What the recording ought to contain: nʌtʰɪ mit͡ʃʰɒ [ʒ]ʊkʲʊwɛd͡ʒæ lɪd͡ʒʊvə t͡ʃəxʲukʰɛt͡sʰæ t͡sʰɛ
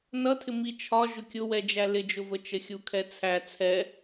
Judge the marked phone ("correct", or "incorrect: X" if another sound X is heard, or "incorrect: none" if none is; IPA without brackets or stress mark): correct